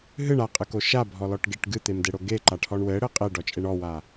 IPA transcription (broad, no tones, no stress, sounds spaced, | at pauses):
ɦ ɨ ɳ a qʼ ɨ k o ʃ a bʱ ɔ l ɔ ʈ ɡ e ʈ ɡ ɨ t̪ e m d e ɽ o ɡ e ǃ a ʈʰ ɔ ɳ w ɘ ɽ ɘ qʼ e ɖ ɔ t͡ʃʼ e ɳ ɔ w a